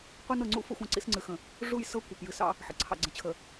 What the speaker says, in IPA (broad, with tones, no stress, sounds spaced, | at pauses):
qʷ i˦ n ɤ˨ ŋ͡ǀ ṵ˦ f ə̰˦ xʷ ə̃˦˨ ǀ ḭ˦ s ŋ͡ǀ ɨ˨ x ə̃˨ | ʐ u˦˨ j s ɤ˦ kʷ ɑ˨ p j ɨ˨ s ɑ̰˦ | ħ ə̰˨ ǀʰ ɑ̰˨ ɡ͡ǀ ə̃˨ t͡ɕʰ ə˨